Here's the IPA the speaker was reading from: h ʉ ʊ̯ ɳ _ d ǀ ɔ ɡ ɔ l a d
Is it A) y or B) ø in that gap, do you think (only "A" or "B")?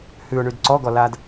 A